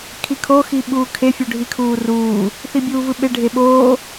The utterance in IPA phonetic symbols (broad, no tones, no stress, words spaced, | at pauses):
kʰikʰo xiɓuːkʰe fʲuɖʱikʰuːruː | θibʲuːvɯɓe ɖʱeɓoː